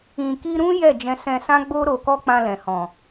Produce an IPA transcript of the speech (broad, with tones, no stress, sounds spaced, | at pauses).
ĩ˨ k i˧ ɾ ũ˦ j ɛ˦˨ d͡ʒ ɛ̃˧ s ɛ̃˧ s ã˦ ɡ͡b o˦ ɾ o˧ k ɔ˦ k͡p ã˧ l ɛ̃˨ h ɔ̃˨